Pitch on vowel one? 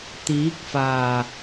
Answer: rising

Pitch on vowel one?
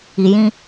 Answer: low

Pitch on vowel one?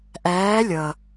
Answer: rising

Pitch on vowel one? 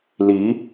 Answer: rising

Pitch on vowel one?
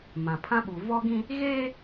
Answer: low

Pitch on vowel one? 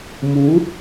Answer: rising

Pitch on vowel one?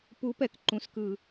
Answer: rising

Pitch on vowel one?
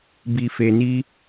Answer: low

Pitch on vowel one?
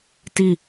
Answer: falling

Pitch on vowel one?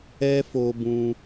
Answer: high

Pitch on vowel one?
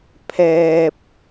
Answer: high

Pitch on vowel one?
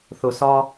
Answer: low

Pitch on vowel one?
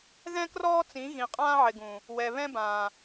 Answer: high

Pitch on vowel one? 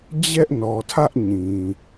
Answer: high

